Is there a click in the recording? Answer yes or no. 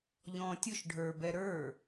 no